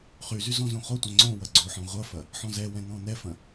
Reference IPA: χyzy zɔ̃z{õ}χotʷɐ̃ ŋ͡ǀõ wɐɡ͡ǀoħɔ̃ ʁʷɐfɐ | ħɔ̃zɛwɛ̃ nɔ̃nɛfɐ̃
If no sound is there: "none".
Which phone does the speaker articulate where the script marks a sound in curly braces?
õ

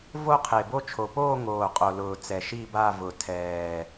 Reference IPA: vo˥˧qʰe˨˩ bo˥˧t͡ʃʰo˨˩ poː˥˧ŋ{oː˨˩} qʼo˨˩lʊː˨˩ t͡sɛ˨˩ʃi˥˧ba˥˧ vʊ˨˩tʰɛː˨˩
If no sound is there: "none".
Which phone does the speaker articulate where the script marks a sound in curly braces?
oː˨˩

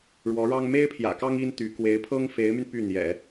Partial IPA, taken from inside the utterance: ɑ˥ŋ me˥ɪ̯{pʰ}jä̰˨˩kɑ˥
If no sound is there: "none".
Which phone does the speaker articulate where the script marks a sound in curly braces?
pʰ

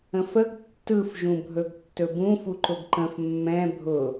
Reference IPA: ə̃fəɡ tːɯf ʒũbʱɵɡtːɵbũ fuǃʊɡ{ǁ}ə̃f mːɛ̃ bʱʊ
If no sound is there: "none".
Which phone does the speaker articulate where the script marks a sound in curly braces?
ǃ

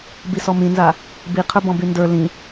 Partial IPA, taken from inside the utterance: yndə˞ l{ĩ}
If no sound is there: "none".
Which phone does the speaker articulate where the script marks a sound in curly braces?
ĩ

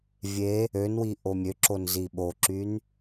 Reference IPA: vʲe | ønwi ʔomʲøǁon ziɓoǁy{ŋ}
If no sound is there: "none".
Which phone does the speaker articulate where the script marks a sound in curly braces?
n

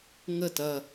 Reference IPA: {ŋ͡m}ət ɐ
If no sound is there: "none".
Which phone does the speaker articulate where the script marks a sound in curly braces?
ŋ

